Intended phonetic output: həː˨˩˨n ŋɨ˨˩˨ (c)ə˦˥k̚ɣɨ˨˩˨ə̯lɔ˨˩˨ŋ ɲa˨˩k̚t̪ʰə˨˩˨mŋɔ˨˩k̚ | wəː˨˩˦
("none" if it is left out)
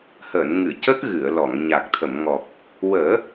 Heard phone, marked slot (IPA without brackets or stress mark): c